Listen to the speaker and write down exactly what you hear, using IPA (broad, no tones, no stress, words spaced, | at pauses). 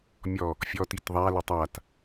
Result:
mʲɔ | fʲɔtit ðˤalə tˤat